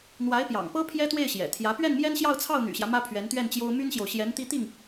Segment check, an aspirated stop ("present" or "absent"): present